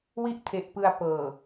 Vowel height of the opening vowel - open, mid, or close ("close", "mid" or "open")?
close